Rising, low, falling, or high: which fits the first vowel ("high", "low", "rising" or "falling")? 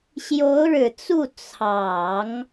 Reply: rising